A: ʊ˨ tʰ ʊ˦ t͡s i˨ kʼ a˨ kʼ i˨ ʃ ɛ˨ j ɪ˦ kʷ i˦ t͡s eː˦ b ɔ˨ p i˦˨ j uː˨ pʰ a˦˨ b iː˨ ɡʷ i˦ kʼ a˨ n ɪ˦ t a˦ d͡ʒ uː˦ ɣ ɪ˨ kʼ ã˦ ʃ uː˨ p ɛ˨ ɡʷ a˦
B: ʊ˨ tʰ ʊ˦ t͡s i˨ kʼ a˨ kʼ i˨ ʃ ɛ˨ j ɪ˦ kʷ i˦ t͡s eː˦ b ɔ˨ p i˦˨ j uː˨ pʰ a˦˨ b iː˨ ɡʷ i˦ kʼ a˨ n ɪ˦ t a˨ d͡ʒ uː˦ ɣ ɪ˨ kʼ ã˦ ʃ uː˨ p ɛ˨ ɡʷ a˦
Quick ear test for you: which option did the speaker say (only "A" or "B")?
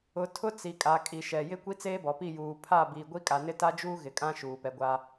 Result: A